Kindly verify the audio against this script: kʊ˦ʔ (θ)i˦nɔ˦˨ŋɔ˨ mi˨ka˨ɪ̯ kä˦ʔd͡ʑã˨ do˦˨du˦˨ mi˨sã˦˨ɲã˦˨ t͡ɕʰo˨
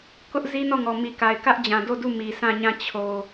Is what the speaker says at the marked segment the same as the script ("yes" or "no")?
no